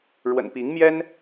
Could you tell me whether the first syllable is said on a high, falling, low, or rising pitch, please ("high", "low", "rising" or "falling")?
low